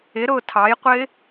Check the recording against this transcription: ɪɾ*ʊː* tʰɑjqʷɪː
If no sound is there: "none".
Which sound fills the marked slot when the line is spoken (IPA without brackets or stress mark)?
ʊː